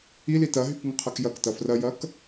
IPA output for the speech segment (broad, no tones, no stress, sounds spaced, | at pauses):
i l i t ɐ ɦ y k ŋ ə qʰ ɐ k j ɐ k t ɐ f r ɐ j ɐ k